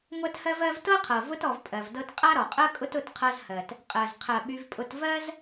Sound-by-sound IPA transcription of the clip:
ŋʷɜ˥thɜ˥vɜ˥v tɤ˥qʰɤ˩vʊ˦t ɔ˨vpʼɜ˩vdɤ˥t qʼa˥ɾɔ˩qʼɜ˥ kʼʊ˥tʊ˦tqʰɤ˦zhɜ˩t | qʼɜ˩z qʰɜ˩ɓy˨vpʼʊ˨t vɜ˥z

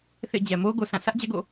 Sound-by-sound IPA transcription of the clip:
θḛ˦˨d͡ʑɛ˨ mo˦ɡo˨sã˦˨ sä˦ʔ d͡ʑɛ˦ɡo̰˦˨

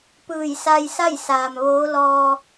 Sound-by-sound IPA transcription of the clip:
pɯː˧˩jsa˧jsa˥˨j saː˩mʋoː˧˥ lɔː˧

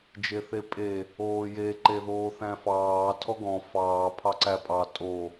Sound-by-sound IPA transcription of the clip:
d͡ʒeθepʼe | oːje ǃeðoːθæ̃fɑː tʰɔɡɔ̃ fɑː pʰɑǀæpʼɑ tʼo

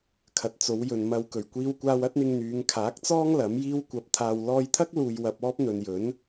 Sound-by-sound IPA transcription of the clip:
kʰɐ˨t̚t͡so˨˧wjɵ˨n mɐ˨w kɵ˨˩ɥkʷiː˧wkʷaː˧w ɐ˥t̚n̪ɪ˧ŋn̪yː˨˧ŋ kʰaː˨˥k̚t͡sɔː˥ŋ lɐ˨˥mjiː˥wkʷɐ˧p̚ t̪ʰaː˨wlɔː˧jt̪ʰɐ˥k̚ luː˧jwɐ˧p̚ɔː˥p̚ n̪ɵ˨njɵ˨˥n

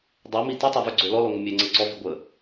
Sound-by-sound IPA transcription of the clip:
dˤɛmi titˤøvø ɡ͡ǀølɔlɔŋʷə mʲøŋ͡ǀə ǀɔvi ɡʷə

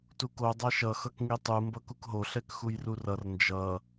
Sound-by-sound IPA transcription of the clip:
tuko dˤaʃʌxʌk ŋitˤu mbʌkukɦo ɬɛkxujrurʌr nd͡ʒʌ

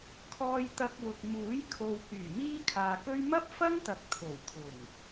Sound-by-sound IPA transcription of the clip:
kʰɔː˧jt̪ɐ˧k̚wʊ˨k̚ muː˨˥jkʰo˨w kyː˨˩miː˥kʰaː˨kɵ˥ɥ mɐ˥p̚fɐ˥ŋt̪ɐ˨k̚ t̪ʰo˨˩wt̪ʰʊ˨˩ŋ

